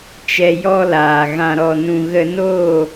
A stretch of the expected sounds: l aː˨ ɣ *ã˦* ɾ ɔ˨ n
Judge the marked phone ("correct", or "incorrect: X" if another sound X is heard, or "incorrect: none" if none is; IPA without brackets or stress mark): incorrect: ã˨